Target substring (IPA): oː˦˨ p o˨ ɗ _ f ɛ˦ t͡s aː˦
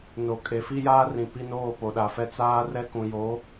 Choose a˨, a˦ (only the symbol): a˨